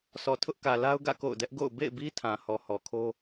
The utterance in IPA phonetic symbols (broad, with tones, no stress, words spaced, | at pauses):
sɔ˨tʰʊ˦ʔkä˨ la˦ʊ̯ɡä̰˦˨ ko̰˦˨ʊ̯ dɛ˦ʔɡo̰˦˨ʊ̯ bḛ˦˨ɪ̯bi˦ tʰã˨hɔ˨hɔ˨kʰo˦